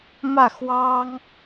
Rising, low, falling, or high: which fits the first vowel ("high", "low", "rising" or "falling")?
falling